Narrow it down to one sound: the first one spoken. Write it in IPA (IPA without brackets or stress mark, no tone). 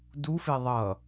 d